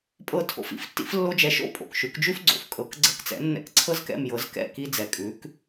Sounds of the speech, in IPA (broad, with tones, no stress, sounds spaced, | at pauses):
pʼ ɤ˥˩ tʰ o̰˧ f ḭ˥˩ f tː ḭ˥ f lː o˥ d͡ʒ ɛ˧ ʃ o̰˥ pʼ o̰˩ k ʃ ʉ˩˥ k d͡ʒ ʉ˥ f ɡ͡ǀ o̰˩ f kʼ ɤ˩˥ k ɡ͡ǀ ɤ˧ k t͡s ɛ̰˩˥ nː ɛ̰˥˩ k ǀʰ ɤ˥ z k ɛ̰˥˩ m j ɤ˩˥ z k ɛ̰˥˩ k i˧ d͡z ɛ˩ kʼ ʉ˩˥ k